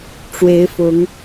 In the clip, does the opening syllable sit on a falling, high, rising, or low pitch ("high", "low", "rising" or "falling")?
rising